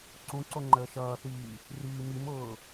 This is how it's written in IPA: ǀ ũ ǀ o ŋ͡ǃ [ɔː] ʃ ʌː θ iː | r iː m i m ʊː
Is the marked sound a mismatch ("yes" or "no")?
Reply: yes